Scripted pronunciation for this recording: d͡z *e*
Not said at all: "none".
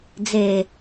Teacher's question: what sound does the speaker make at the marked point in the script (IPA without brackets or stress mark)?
e